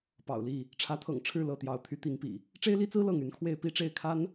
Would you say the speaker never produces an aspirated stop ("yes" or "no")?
no